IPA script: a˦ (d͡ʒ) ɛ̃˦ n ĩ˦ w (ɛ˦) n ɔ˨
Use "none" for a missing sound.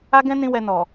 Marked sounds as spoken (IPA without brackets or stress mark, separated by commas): ɡ, ɛ˧